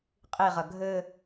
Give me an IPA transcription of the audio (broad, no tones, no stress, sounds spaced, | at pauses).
qʼ i ʁ ɐ ɡʱ ɘ